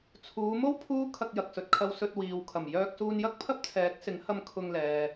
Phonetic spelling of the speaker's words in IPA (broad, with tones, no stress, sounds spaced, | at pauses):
t͡sʰ uː˨˧ m o˥ w pʰ uː˥ kʰ ɐ˧ k̚ j ɐ˨ k̚ s ɵ˨ t̚ kʰ ɐ˧ w s ɵ˧ t̚ w iː˨ w kʰ ɐ˨˩ m j œː˧ k̚ s uː˧ n j ɐ˥ k̚ pʰ ɐ˥ p̚ t͡sʰ ɛː˨˥ k̚ s ɪ˨˥ ŋ h ɐ˧ m kʰ ʊ˧ ŋ l ɛː˨